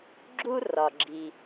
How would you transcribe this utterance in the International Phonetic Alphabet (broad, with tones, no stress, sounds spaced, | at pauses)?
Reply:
ɡ͡ǁ u˥ r ɒ˩ ɡ͡ǁ i˩